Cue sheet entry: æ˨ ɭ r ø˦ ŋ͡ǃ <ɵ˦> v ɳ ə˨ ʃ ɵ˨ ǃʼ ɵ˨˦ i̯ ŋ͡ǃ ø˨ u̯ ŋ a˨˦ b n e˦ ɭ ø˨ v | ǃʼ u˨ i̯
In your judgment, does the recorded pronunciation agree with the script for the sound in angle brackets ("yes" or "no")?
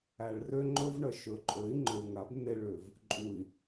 yes